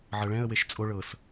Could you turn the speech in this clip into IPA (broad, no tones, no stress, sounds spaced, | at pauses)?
ʕ ɤ ɭ ɛ̃ ə̯ w e ʃ t͡sʼ o ɭ ɤ s